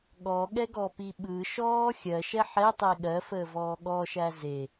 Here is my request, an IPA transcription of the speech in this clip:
ɠ ɔ ɠ ɛ ɡ ɔ p i ɓ ɯ ʃ ɔː xʲ ɜ ʃ ɛ ħ ɛ tˤ e ɠ ɜ f əː v ɔː ɠ ɔ ʃ æ z e

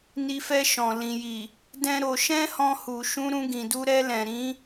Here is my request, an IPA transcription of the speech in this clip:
n i˧ f ɛ˧ ʃ ɔ̃˨ l ĩ˨ j i˨ | d ɛ̃˦ ɾ o˧ ʃ ɛ̃˦ h ɔ̃˧ h u˨ ʃ ũ˧ ɾ ũ˧ ɡ ĩ˨ d u˧ ɾ ɛ˧ l ɛ̃˨ ɾ ĩ˨˦

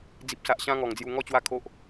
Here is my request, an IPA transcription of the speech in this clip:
d͡z i˨ p̚ s a˨ ʔ ɕ ã˧ ŋ ɔ˨˩ ŋ d͡z j u˧ ŋ ɔ˥˧ t͡ɕ w a˥˧ kʰ o˦ ʔ

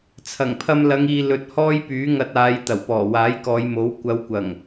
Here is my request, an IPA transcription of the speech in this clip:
t͡sʰ ɐ˨˩ ŋ pʰ ɐ˧ m l ɐ˨˧ ŋ iː˨ l ɵ˨˥ t̚ h ɔː˥ j p yː˨˥ ŋ ɐ˧ t̚ aː˨˧ j t̪ ɐ˨˩ w p ɔː˨˩ w aː˨˥ j k ɔː˨˧ j m o˨˥ w kʷ ɐ˨˧ w kʷ ɐ˨˩ ŋ

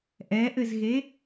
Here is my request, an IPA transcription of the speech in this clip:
ʔ ɛ ʔ ɘ z ɣ e

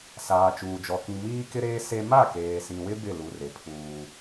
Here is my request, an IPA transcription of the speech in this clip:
s aː˨ t͡ʃ uː˨ d͡ʒ ɔ˨ k ĩ˨ m iː˦ k ɪ˦ ɾ eː˦ s e˦ m a˦˨ k eː˨ s ĩ˨ w ɪ˦ b ɪ˦˨ l u˨ r e˨ pʰ uː˦

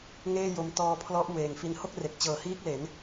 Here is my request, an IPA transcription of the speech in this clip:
ŋ eː˥˩ j o˧ m t ɔː˧ pʰ l ɔ˦˥ ʔ w eː˨˩ ŋ f i˧ n h o˥˩ k̚ r e˨˩ k̚ t͡ɕ ɤː˨˩ h iː˦˥ k̚ l e˩˦ n

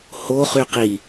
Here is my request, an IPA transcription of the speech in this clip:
h o χ y q i

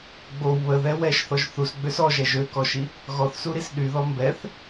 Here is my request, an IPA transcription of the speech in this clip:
ɡ͡b o w β ə ð ɛ w ɛ ʃ θ ɔ ʒ θ u s ɡ͡b ø s ɔ ʒ ɛ ʒ ø k ɔ ʃ i | ɣ ɔ θ s u ɾ i s ɗ y ð ɔ m b ɛ θ

